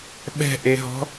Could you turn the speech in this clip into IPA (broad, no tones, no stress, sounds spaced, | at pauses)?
ɓ ɛ̤ ʔ e ɦ ɔ̤